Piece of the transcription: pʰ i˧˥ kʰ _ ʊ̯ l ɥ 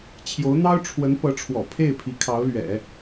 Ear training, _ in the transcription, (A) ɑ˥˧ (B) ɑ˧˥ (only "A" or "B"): B